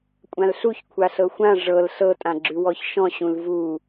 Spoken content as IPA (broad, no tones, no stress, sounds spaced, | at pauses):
kʷʼ ã l ɬ u ç kʷʰ a ɬ ɤ xʷ ã ʐ ɤ l ɬ ɤ tʼ ã ɡ͡ǁ ʉ w ɔ ç ʃ ɔ̃ ɕ ũ l v u